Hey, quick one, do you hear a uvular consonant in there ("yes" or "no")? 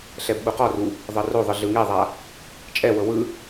yes